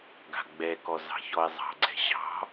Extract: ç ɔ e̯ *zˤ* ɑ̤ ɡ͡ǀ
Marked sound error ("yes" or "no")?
no